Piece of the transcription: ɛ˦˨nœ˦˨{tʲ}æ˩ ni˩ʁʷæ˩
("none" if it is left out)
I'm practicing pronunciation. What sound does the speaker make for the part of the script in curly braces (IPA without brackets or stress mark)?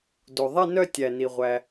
tʲ